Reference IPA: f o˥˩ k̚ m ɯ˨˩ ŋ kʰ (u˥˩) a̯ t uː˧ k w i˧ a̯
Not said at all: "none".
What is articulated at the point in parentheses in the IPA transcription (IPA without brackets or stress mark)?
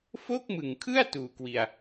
ɯ˥˩